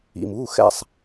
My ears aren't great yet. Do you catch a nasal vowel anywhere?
no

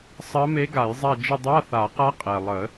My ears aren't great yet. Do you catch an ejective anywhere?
yes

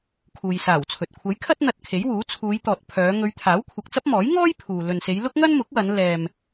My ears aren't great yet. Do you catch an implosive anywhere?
no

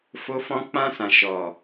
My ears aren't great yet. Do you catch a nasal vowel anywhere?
yes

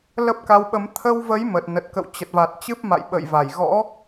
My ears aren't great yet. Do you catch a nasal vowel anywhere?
no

